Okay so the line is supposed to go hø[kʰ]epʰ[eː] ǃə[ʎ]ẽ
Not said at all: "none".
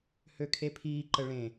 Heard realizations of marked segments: kʰ, iː, ɭ

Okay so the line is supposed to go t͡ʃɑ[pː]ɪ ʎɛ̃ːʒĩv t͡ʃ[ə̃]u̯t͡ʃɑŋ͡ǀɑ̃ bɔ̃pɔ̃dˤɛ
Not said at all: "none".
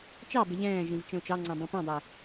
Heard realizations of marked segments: b, ə̃

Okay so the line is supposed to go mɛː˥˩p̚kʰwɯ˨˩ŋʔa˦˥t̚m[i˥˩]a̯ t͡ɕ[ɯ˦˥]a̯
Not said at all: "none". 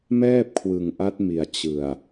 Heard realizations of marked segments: i˨˩, ɯ˨˩

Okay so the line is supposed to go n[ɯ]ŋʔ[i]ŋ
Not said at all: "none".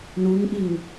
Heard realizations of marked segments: u, i

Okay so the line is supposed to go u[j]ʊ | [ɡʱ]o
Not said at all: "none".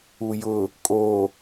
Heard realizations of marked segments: j, kʼ

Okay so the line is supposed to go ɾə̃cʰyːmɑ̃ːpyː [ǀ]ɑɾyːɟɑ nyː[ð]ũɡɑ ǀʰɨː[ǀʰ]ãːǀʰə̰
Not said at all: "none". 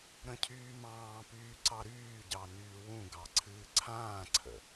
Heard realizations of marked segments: ǀ, w, ǀʰ

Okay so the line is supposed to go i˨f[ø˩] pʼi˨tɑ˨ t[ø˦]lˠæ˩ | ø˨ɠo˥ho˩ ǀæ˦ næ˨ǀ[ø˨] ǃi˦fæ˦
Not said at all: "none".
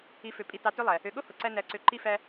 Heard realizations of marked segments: ø˩, ø˦, ø˨

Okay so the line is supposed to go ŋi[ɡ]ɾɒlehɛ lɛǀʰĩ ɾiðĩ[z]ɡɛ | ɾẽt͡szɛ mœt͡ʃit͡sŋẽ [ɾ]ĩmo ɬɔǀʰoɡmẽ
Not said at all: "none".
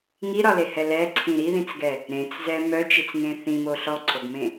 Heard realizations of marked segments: none, t͡s, θ

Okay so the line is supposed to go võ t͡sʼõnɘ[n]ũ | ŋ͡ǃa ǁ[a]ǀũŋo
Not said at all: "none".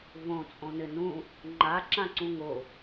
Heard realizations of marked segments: n, ã

